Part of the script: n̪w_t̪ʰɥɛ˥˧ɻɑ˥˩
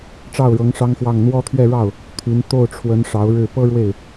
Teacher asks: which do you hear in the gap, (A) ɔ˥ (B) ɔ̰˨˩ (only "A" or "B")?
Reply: A